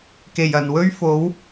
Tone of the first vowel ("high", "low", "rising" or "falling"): low